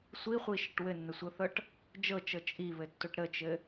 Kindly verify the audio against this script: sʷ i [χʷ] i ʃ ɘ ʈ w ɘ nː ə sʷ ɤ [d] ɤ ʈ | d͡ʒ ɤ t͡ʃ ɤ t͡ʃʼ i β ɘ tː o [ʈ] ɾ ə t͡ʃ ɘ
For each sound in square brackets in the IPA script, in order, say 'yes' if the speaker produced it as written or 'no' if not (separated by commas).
yes, no, yes